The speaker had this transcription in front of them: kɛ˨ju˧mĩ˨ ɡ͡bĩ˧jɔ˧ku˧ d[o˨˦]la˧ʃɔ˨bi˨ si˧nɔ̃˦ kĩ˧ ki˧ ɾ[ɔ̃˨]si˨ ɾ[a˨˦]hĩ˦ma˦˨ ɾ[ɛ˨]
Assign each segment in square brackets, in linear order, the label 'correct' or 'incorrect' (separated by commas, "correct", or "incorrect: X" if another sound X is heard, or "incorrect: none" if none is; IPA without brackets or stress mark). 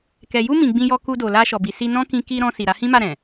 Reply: incorrect: o˨, incorrect: ɔ̃˧, correct, incorrect: ɛ̃˨